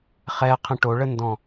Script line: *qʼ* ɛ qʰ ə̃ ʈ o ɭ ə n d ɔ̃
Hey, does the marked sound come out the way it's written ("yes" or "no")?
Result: no